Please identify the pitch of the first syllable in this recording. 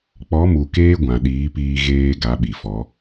rising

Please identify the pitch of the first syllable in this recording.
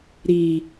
low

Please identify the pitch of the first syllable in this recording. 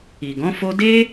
low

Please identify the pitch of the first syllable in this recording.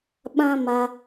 high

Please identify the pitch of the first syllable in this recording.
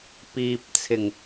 low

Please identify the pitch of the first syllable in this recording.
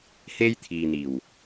high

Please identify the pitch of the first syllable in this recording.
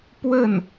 falling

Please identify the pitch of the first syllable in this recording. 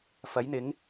rising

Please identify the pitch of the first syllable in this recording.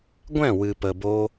falling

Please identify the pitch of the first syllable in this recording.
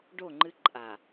falling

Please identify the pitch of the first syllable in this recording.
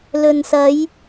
low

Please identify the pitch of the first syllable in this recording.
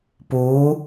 rising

